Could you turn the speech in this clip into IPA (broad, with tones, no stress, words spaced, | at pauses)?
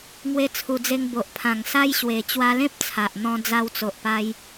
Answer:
ŋwe˧t͡sʰu˨˩d͡ze˧ŋ bo˨ʔpʰã˨˩ŋ sa˦j ɕwe˨˩ t͡ɕwa˧lẽ˦p̚ t͡sʰa˨ʔn̪ɔ̃˧ d͡za˧wt͡so˨ʔpa˧j